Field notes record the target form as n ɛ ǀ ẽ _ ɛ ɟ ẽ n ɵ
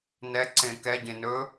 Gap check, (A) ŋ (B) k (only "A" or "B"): B